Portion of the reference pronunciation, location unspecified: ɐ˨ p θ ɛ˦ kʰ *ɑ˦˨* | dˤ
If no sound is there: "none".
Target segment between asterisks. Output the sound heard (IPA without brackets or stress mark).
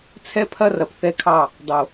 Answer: ɑ˦˨